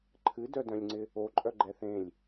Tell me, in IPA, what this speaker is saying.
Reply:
ǃʰ ɨ d œ d œ̃ lʲ ŋ͡ǀ ɪ | o ǃʼ œ ɡ͡ǃ ɛ θ ẽ lʲ

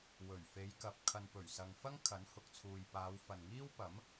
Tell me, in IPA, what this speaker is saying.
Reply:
w ɵ˨˩ ɥ f e˨˧ j k ɐ˨ p̚ kʰ ɐ˨ n p ɵ˨˩ ɥ s ɐ˨ ŋ f ɐ˥ ŋ kʰ ɐ˨˥ n h ʊ˨ k̚ t͡sʰ uː˨ j p aː˨˧ w f ɐ˨ n ŋ iː˥ w p ɐ˨˥ m

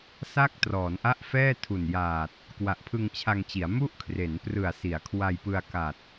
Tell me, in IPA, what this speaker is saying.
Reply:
s a˥˩ k̚ t r ɔː˩˦ n ʔ a˥˩ ʔ f ɛː˥˩ tʰ u˨˩ n j aː˨˩ t̚ | k w a˨˩ ʔ pʰ ɯ˧ ŋ t͡ɕʰ a˧ ŋ t͡ɕ i˩˦ a̯ m u˥˩ ʔ kʰ r e˩˦ n p r ɯ˨˩ a̯ s i˩˦ a̯ kʰ w a˧ j p ɯ˧ a̯ k a˨˩ t̚

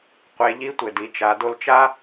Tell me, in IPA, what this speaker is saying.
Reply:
qʷ e˩˧ ʎ i˧˥ tʷ ɘ˩ d i˩˧ t͡ʃ a˩˧ d o˧ l t͡ʃ a˥

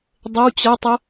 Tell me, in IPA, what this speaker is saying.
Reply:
dˤ ə w t͡ɕ ɐ tˤ ə

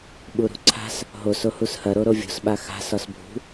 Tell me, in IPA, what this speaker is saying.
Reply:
ɓ u ɾ ṳ ǀʰ a̤ s | ɦ o s o h u s h ɐ ɾ o ɾ o vʲ o̤ s ɓ a x a̤ s ɒ s bʱ ṳ

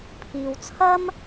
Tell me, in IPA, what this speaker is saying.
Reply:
pʰ iː˧ w t͡sʰ ɐ˥ m

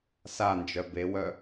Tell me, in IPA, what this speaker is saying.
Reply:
s a n d͡ʒ œ b e w œ

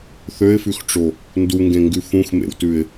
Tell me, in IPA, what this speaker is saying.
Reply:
θ ø ɪ̯ f ʉ x ʈ͡ʂ o | n d u ŋ ɡ ẽ ŋ ɡ ʉ f ũ x m ḛ w t ʉ ɪ̯

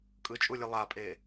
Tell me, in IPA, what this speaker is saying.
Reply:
kʼ ɯ t͡ʃʼ u lʲ ɯ lˠ a pʼ eː

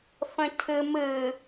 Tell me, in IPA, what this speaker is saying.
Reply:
f ə̃ cʰ ɨ m ɨ

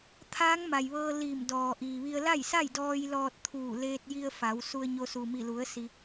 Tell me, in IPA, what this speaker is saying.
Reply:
t̪ʰ aː˧˥ ŋ m a˩ j ʋ ɤː˧ l iː˧˩ m d ɔː˩ ʔ iː˩ ʋ i˧ ə̯ l a˥˨ j s a˥˨ j d ɔː˧ j l ɔː˧ t̚ t̪ʰ uː˧˩ l eː˧ t̚ j i˧ ə̯ f a˩˧ w s u˧ ə̯ ɲ o˧ s u˩ m i˧˩ l u˩˧ ə̯ s i˧

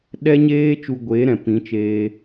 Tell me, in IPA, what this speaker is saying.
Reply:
ɗ ɛ˦ ɲ eː˦ t͡ʃ u˧ ɡʷ eː˨˦ ɾ ɛ̃˨ p ĩ˨˦ t͡ʃ eː˧

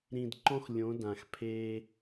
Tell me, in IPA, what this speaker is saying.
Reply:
ɾ ĩ˨ d ǃ ɔ̃˦ x lʲ õ˨˦ d ã˨ x pʰ e˦

